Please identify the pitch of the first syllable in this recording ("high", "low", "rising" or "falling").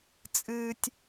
high